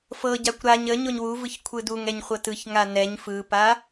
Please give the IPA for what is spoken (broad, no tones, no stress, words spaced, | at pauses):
fɤɟakʷ ɾaɲ ə ɲoɲwuvɯç kʷʰɯduŋɛɲ χʷɤtɯçŋa nɛɲ fɯpa